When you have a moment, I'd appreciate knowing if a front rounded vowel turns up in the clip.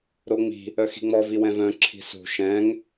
yes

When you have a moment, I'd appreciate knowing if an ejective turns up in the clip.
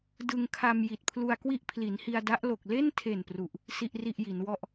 no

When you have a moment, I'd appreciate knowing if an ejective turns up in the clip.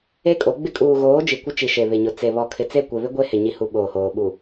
yes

